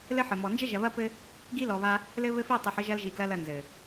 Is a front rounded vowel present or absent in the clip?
absent